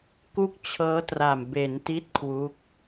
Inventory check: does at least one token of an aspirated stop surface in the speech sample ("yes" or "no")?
yes